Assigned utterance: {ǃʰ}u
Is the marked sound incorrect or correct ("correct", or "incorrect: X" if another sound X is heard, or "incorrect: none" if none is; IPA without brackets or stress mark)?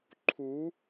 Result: correct